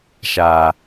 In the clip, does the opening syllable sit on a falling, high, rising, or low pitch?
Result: low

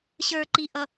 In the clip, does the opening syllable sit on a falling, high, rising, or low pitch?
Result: low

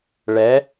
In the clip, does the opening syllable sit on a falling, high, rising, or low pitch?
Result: rising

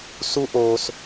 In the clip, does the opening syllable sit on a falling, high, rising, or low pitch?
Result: high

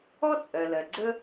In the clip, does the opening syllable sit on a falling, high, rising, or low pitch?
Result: high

